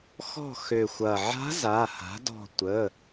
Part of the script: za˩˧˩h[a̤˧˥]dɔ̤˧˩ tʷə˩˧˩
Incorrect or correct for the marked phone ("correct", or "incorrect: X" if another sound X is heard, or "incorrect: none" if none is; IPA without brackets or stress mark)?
incorrect: a̤˩˥